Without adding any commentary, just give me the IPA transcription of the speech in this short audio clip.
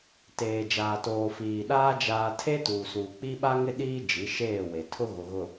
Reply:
t eː˨ d͡ʒ aː˨ t oː˨ f iː˨ ɗ aː˦ d͡ʒ aː˦ tʰ e˦ t uː˨ s uː˨ k͡p i˦ ɓ a˦ ŋ ɪ˦ ɗ iː˦ d͡ʒ i˨˦ ʃ eː˦˨ w e˨ tʰ ʊ˦ ɣ ʊ˨ ɣ ʊ˨

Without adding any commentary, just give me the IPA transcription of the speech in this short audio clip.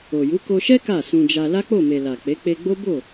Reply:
o˨ j u˨˦ k o˧ ʃ ɛ˦ k a˦˨ s ũ˧ d͡ʒ a˧ l a˦ k͡p o˦˨ m e˨ l a˨ k͡p e˨˦ k͡p e˧ ɡ͡b o˦ b o˦˨

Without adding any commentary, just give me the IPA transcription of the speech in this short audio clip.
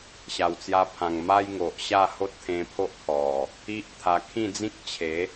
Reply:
ɕ a˨˩ w t͡s j a˧ pʰ ã˨˩ ŋ m a˦ j ŋ o˨ ʔ ɕ a˥˧ h o˦ t̚ t̪ʰ ẽ˧ pʰ o˦ ʔ kʰ ɔ˨˩ | i˦ ʔ t̪ʰ a˧ kʰ ĩ˥˧ d͡z ĩ˦ k̚ t͡ɕʰ e˨˦

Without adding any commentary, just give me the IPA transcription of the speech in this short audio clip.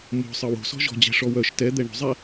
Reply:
m o̤ sˤ ə w o̤ s ɔ̤ ʒ ɔ̤ d͡ʑ ɛ̤ ʂ ɔ w œ ʃ t ɛ d̪ ɛ ɳ o̤ zˤ ɛ

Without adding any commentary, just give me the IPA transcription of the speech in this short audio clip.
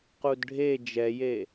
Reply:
q u d ɖʱ e d͡ʒ ɛ j e

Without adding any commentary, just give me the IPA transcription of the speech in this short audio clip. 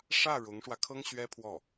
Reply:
ʂ ä˥˩ ɻ ʊ˧˥ ŋ ʂ w ä˧ kʰ ɤ˥ ŋ ɕ ɥ ɛ˥ pʰ w ɔ˥˩

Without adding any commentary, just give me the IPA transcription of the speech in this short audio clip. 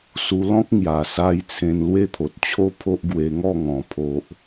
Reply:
s u˧ l ɔ̃˦ k̚ ŋ j a˨˩ s a˧ j t͡sʰ ẽ˧ n l w e˦ t̪ʰ o˨ t̚ t͡ɕʰ o˦ pʰ o˦ ʔ ɡ w e˧ ŋ ɔ˥˧ ŋ ɔ̃˨˩ pʰ o˨ ʔ

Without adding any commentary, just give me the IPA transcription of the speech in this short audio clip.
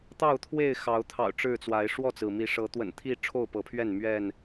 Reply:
t̪ ɑ˥˨ ʊ̯ t̪ʰ w e˥˨ ɪ̯ x ɑ˨˦ ʊ̯ t̪ʰ ɑ̰˨˩ ʊ̯ ʈ͡ʂ ɻ̩˥˨ t͡s w a˨˦ ɪ̯ ʂ w ɔ˥˨ t͡s ɹ̩˩ m i˨˦ ʂ ɤ˨˦ t̪ w ə̰˨˩ n t̪ʰ i˥˨ ʈ͡ʂʰ o˥˨ ʊ̯ p ɤ˨˦ pʰ ɥ ɛ˥˨ n m ɥ ɛ˥˨ n

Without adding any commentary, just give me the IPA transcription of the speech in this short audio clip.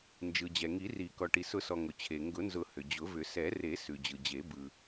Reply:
n d͡ʒ ɯ˩ d͡ʑ ɛ˩ ŋ i˨˩˦ r i˨˩˦ k ɔ˩ ʈ i˩ s ʊ˨˩˦ s ɔ˩ ŋ ʊ˩ t͡ɕʰ e˩ ŋ ɡ ʊ˨˩˦ n z ʊ˨˩˦ h ʏ˩ d͡ʑ ʊ˨˩˦ v ʏ˨˩˦ s ɛ˨˩˦ r e˨˩˦ s ʉ˩ d͡ʑ ɯ˩ d͡ʑ e˨˩˦ b ɯ˩

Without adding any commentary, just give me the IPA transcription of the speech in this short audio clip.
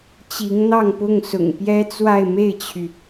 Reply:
t͡ɕ i˧˥ ŋ n̪ ɑ˥˧ ŋ p ʊ˥˩ ŋ s ʊ̰˨˩ ŋ p j ɛ˥ t͡s w a˥˧ ɪ̯ m e˥˩ ɪ̯ t͡ɕʰ y˩

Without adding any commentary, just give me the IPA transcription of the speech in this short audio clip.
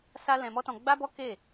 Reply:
s a˦ l ɛ̃˧ m ɔ˦ t ɔ̃˧ ɡ͡b a˦ b ɔ˦ k e˦˨

